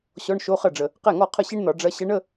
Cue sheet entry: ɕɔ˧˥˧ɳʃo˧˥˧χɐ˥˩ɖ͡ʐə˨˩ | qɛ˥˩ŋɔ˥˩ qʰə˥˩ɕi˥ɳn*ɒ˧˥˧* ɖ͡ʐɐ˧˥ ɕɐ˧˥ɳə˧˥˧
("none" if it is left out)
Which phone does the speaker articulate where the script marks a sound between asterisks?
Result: ɒ˧˩˧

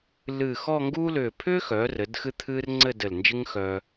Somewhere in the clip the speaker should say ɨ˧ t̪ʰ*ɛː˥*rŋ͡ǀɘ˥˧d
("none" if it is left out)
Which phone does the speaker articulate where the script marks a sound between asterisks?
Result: ɨː˥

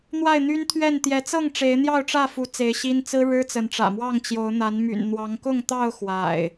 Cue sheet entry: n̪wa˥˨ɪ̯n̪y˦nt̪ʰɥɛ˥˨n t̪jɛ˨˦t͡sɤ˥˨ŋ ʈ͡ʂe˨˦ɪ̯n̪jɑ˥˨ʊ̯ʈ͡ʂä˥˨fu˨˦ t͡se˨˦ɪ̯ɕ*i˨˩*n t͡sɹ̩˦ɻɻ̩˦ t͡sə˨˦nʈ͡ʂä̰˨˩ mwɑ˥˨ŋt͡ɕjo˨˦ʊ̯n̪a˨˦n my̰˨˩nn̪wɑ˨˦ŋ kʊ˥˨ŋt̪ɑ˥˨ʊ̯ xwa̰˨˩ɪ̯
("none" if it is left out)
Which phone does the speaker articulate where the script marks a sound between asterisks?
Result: i˦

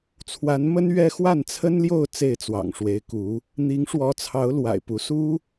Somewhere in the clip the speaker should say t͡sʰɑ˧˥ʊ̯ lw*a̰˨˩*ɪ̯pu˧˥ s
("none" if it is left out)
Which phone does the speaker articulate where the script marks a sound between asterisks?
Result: a̰˨˩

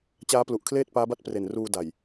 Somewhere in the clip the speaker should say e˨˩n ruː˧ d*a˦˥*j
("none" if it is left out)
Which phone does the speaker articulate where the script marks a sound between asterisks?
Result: a˨˩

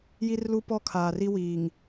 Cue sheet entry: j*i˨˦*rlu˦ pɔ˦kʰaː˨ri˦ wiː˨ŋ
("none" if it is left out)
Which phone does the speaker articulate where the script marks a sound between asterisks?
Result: i˦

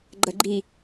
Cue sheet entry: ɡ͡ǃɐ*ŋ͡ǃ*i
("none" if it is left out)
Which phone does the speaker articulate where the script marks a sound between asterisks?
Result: ɡ͡ǃ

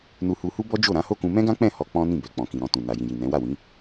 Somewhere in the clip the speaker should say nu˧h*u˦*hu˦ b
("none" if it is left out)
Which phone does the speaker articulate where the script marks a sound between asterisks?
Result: u˧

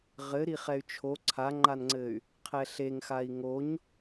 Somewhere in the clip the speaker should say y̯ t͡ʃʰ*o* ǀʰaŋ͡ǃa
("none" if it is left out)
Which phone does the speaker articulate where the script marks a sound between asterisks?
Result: o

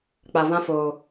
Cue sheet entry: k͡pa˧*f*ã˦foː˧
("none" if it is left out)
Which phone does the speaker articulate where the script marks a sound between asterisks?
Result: v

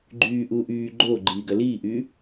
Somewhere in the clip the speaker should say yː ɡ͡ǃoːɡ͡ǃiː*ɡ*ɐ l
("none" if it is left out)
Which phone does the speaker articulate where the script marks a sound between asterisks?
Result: ɡ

